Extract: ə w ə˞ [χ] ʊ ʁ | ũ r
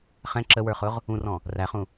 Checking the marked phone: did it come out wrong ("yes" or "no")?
no